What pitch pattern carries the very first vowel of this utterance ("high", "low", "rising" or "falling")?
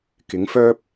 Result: rising